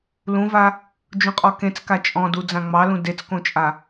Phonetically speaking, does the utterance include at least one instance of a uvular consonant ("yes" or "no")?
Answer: yes